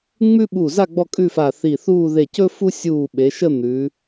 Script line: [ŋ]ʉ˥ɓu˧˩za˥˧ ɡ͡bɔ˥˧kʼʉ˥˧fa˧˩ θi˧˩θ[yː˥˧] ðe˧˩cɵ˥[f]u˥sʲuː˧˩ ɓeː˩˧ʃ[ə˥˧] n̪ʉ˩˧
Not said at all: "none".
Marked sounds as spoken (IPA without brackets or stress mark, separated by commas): ŋ͡m, uː˥˧, f, ə˥˧